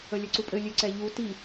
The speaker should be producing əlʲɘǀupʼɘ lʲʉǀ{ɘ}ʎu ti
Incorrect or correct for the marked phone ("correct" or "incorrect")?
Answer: incorrect